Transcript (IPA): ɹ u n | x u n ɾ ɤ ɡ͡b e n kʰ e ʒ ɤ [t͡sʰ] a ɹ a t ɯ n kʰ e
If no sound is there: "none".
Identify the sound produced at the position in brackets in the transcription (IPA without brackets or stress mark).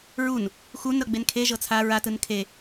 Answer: t͡sʰ